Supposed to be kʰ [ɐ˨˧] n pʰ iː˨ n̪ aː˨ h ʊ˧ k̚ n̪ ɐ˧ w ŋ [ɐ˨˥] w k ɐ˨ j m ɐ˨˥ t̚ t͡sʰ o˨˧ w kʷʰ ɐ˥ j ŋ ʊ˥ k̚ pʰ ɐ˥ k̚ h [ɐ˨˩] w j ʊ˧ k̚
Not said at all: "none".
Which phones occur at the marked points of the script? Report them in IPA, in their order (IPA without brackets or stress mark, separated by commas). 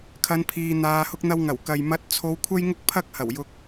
ɐ˨˧, ɐ˨˩, ɐ˨˩